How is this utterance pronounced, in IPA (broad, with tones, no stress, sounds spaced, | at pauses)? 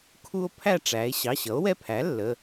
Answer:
kʰ u˦ o̯ pʰ æ˦˨ ʈ͡ʂ æ˩˧ e̯ ɕ ɑ˩˧˩ ɕ ʌ˩˥ o̯ w ɛ˦ pʰ æ˩˥ lː ə˩˧˩